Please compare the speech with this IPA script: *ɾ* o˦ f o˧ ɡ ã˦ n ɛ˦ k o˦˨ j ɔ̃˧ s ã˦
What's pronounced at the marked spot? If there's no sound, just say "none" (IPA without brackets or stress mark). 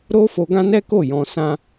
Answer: ɾ